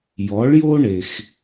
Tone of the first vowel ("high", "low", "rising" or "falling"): rising